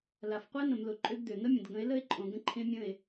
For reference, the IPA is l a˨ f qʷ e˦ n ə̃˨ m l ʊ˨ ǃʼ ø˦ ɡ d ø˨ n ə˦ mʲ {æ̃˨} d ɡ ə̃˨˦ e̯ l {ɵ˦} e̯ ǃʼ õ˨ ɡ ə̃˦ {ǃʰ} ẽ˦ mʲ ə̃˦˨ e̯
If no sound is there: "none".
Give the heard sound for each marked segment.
ə̃˨, ə˦, ǃʰ

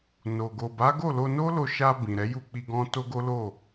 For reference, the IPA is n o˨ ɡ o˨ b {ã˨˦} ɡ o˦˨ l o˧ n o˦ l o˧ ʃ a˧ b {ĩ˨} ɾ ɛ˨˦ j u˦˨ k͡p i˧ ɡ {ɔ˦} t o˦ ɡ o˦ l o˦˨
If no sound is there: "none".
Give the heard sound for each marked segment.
a˨˦, ĩ˨, ɔ̃˦

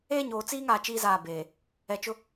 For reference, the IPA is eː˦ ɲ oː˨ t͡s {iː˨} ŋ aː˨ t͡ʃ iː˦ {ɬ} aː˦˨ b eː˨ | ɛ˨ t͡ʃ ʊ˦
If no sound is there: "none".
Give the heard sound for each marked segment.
iː˦, z

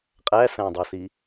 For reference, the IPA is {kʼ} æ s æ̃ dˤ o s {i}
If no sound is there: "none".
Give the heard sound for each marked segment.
qʼ, i

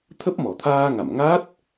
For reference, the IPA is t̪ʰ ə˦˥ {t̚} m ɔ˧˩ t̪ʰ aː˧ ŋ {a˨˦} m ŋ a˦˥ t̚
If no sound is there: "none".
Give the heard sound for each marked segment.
p̚, a̰˧˨

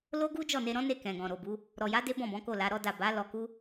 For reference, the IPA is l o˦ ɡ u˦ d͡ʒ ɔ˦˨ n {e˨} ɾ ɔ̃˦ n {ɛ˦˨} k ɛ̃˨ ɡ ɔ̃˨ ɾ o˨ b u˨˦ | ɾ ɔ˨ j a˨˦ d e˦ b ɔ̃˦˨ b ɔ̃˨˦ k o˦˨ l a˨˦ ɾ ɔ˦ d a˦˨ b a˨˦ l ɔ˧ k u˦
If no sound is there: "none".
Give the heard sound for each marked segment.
e˧, e˦˨

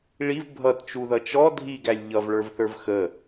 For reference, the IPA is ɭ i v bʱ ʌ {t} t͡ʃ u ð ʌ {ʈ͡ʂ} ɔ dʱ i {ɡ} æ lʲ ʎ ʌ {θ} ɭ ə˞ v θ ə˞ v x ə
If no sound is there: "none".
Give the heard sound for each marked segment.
t, t͡ʃ, ɡ, v

